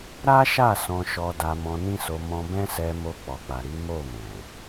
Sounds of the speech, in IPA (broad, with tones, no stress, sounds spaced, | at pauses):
ɾ a˦ ʃ a˦˨ s ɔ̃˧ ʃ ɔ˧ d a˧ m ɔ̃˧ n ĩ˦ s o˧ m ɔ̃˧ b ɛ̃˦ s ɛ˧ m o˧ k͡p ɔ˨ k͡p a˨ ɾ i˨˦ m o˦˨ m ɛ̃˨